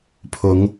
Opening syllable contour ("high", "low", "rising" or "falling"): rising